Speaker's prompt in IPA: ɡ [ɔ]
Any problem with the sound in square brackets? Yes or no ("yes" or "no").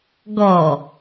no